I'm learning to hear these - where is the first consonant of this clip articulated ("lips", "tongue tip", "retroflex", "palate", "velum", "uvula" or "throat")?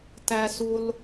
tongue tip